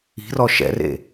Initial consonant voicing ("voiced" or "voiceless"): voiced